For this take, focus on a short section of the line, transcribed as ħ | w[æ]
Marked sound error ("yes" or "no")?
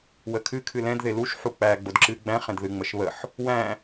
yes